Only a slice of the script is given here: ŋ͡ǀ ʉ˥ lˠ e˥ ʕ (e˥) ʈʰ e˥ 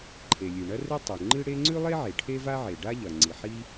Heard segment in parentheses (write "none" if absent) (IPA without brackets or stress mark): e˩